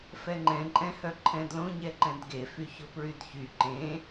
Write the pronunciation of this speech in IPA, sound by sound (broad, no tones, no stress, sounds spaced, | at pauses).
f ɛ ŋ͡ǃ ɛ̃ ǃʼ ɛ̃ h œ ǃʰ ɛ̃ d l õ ɲ ɛ ǃ ɛ̃ d ɡ e f y ç o p ɹ y d ç y ǃ ẽ